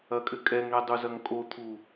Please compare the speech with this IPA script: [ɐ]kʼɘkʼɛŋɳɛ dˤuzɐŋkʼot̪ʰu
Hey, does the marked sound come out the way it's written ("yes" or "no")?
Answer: yes